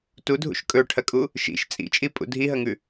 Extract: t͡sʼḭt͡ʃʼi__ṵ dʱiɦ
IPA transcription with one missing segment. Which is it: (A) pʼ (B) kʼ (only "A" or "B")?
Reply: A